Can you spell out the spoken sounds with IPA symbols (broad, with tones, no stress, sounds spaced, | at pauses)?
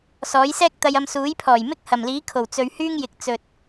s ɔː˨˥ j s ɛː˥ k̚ t̪ ɐ˧ j ɐ˧ m s uː˨˥ j pʰ ɔː˨˩ j m ɪ˥ k̚ h ɐ˨˩ m l iː˨˥ kʰ o˨˩ w t͡s ɵ˨ ɥ h yː˥ ŋ j ɪ˨ k̚ t͡s ɵ˧ t̚